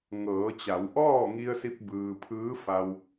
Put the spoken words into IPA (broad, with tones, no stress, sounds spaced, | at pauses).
ŋ ɤː˩˧ t͡ɕ a˩˧ w ʔ ɔː˥˨ ŋ i˧ ə̯ s i˧ p̚ b ɯː˧ pʰ ɯː˧˥ f a˧ w